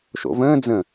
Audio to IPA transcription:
ʃ o̰ v ə̃ː d͡z ə̃

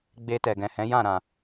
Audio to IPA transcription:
ɡ͡b e˧ t ɛ˨ ɡ ɛ̃˨ h ɛ̃˨˦ j ã˦˨ ɾ ã˨

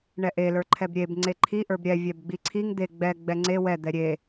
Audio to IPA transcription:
ɳ ɛ ʔ e l ə˞ ǃʰ ɛ b ɾʲ e b ŋ͡ǀ e ǃʰ i ʔ ə˞ b ɾʲ ɛ vʲ ɛ b ɡ͡b i ǀʰ i ŋ d̪ e ɡ͡b ɛ ɡ͡b ɛ ŋ͡ǀ e w ɛ d̪ ɛ ɾʲ e

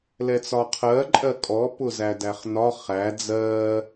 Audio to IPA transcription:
l ɛ t͡s ɒ qʰ ɜ ǃʼ ɜ kʼ ɔ p ʊ z æ d æ χ n ɒ χ æ d͡z ɜ

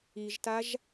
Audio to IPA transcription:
i ʒ t a ʒ

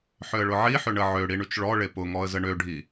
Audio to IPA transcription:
ħ ʏ ə̯ ɭ ʊ ʕ i ħ ʏ ɳ ə ʕ ø ɽ i ɳ y t͡ʃ ɭ ɔ ɭ e p ʊ ŋ ɔ ə̯ z ə ɳ ø ɖʱ i

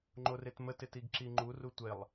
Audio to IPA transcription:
ŋ͡ǃ o r e t m ə t ɪ t i ɡ ǁ i ŋ͡ǃ u r u tʷ e lˠ

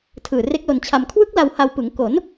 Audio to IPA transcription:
tʰ ɯː˨˩ r e˦˥ k̚ l o˧ n t͡ɕʰ a˧ m kʰ w ɯ˦˥ k̚ l a˧ w h a˧ w p ɯ˩˦ ŋ k o˩˦ n

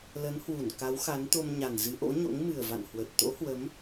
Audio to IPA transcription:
l ə˨˦ n h w u˧˩ n k a˨˦ w x a˨˦ n t̪ o˧ m ɲ a˨˩ n z ɨ˨˦ ʔ o̰˧˥ ɲ o̰˧˥ ŋ m ɨ˨˩ ə̯ v a̰˧˨ n h w ə˨˩ t̚ t̪ o̰˧˥ h w ə˨˦ m

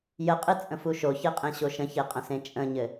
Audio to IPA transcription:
j ə qʼ ɨ t͡sʼ ə̃ f u ʃ o ç e qʼ ẽ ɕ o ʃ ə̃ ç e qʼ ə̃ s ẽ t͡ʃʼ ə̃ ɲ ɘ

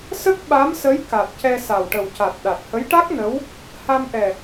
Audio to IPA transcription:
s ə˦˥ k̚ ɓ a˧˥ m s ə˧˥ j k a˨˩ t̚ c ɛ˧ s a˨˩ w ʈ ə˨˩ w c a˨˩ t̚ ɗ a˨˩ t̚ h ə˧˥ j ʈ a˦˥ k̚ n ə˧˥ w | h a˧ m ʔ ɛ˨˩

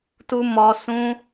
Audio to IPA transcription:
t u˦ m ɔ˦ s ũ˦

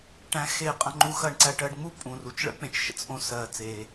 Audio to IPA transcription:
ʈ æ̃˧ x e˧ qʼ ɐ̃˧ ŋ͡ǃ u˧ x ɐ˧ ɳ ǀ æ˧ ʈ ɜ˧ ɖ ŋ͡m u˥ pʼ ũ˩ r u˩ t͡ʃ ɭ ə̰˥ k͡p ẽ˩ t͡ʃ ʃ ə̰˧ t͡s ʔ õ˧ s ɜ˩ t͡s e˩

